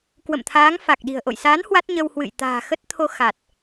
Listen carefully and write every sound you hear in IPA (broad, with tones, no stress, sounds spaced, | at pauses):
k w ə̰˧˨ m t̪ʰ aː˨˦ ŋ f a˨˩ k̚ ɗ i̤˨˩ ə̯ ʔ o̰˧˨ j s aː˨˦ n h w a˦˥ t̚ ɲ ə˧ w h w ɨ̰˧˨ j t̪ a̤ː˨˩ x ə˦˥ t̚ t̪ʰ o˧ x a˨˩ t̚